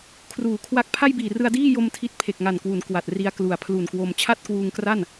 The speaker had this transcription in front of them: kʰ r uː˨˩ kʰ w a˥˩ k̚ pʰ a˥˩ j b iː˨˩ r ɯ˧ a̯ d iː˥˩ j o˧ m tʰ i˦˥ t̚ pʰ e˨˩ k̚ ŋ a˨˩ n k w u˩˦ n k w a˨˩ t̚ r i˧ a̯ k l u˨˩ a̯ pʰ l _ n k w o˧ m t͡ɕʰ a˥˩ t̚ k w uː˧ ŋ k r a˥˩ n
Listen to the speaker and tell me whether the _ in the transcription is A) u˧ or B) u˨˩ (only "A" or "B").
B